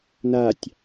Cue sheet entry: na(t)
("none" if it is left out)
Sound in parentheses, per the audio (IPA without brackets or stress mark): tʲ